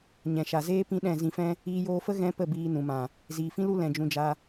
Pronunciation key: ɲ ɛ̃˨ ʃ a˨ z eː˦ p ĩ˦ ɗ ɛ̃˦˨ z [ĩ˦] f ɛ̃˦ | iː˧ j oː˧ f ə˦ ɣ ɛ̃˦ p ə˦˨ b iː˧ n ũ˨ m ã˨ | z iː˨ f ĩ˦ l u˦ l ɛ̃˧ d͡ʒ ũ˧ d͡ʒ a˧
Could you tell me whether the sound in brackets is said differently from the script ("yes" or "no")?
yes